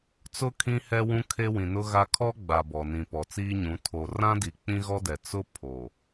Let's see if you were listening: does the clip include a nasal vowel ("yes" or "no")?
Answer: yes